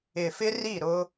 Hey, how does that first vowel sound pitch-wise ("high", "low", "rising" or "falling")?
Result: low